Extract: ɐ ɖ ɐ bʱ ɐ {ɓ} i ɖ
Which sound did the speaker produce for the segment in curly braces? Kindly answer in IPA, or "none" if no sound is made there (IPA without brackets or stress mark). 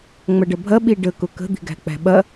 ɓ